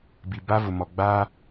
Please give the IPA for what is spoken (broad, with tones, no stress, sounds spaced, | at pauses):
b i˨ b a˦ v ʊ˨ m ɔ˨ ɡ͡b a˦